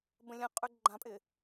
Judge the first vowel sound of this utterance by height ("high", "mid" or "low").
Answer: mid